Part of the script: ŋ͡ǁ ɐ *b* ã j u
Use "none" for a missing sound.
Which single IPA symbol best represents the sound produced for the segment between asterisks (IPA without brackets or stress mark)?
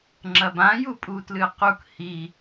b